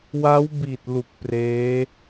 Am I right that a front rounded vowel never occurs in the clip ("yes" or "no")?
yes